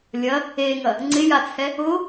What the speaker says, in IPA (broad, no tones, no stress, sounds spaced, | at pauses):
lʲ ɐ | e ŋ ɐ | ŋ͡ǀ ɪ j a t͡sʰ ɛ | ʊ